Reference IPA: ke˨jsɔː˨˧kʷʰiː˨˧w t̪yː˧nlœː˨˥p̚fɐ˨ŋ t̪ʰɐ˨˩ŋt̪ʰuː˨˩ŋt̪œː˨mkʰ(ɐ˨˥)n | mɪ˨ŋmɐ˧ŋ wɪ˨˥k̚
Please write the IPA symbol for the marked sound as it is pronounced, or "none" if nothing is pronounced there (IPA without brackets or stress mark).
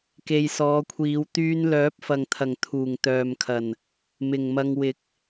ɐ˨˩